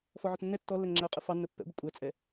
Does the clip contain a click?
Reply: yes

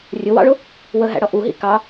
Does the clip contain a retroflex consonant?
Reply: yes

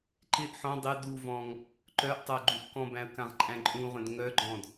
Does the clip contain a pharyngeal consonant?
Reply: yes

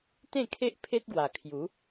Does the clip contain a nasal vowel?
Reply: yes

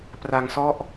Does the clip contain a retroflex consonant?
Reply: no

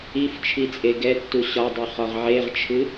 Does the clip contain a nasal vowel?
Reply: no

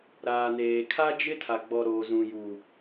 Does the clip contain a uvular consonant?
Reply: no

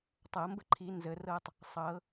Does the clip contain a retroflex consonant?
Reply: no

